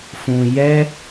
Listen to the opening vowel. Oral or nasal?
nasal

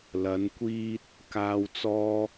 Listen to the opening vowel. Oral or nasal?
oral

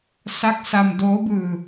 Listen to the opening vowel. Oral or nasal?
oral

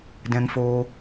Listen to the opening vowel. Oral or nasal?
nasal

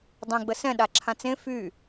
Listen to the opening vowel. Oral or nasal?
nasal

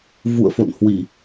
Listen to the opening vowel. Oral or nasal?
oral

